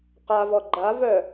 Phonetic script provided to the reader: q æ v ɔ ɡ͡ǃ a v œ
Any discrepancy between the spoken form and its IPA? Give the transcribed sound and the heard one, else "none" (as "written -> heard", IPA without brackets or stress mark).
æ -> a